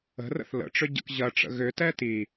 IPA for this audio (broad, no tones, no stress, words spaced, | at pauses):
ə̤ rə̰θlə̰ʈ͡ʂʏ ɟə̰kʑɐʈ͡ʂə̰ ɣʏtɛ ti